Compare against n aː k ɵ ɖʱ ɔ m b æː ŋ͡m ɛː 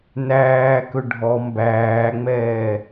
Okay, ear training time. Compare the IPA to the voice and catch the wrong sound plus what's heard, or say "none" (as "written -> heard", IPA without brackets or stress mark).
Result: aː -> æː